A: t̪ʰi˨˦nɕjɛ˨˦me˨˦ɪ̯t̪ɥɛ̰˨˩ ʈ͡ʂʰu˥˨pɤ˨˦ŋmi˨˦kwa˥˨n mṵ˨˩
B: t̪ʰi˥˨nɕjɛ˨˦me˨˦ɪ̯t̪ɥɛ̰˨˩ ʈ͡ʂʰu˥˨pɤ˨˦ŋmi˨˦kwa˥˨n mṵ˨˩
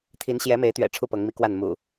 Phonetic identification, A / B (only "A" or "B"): A